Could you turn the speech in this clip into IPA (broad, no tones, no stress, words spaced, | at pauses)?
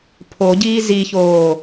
pʰoɟiː ziçoː